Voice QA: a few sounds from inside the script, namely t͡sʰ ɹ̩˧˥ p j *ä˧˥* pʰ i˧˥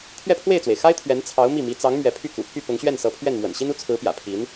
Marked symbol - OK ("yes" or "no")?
no